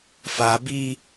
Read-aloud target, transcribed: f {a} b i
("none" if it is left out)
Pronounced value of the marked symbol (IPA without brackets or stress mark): a